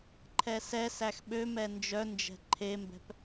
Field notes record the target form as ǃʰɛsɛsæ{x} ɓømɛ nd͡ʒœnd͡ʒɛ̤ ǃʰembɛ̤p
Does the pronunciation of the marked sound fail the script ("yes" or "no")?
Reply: no